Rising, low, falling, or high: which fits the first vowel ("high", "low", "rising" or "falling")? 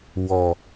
low